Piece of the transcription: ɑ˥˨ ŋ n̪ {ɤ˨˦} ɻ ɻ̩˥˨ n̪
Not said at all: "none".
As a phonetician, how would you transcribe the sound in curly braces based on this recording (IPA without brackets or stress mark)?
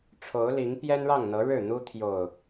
ɤ˨˦